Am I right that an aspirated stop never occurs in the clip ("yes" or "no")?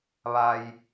yes